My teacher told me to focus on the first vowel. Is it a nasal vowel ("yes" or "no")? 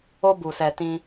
no